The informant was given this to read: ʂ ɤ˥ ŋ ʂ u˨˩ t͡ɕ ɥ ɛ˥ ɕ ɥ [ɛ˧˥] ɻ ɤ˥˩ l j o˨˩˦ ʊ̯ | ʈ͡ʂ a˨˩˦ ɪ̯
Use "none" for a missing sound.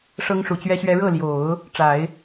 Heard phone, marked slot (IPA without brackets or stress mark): ɛ˥